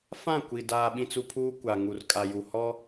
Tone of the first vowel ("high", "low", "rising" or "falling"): falling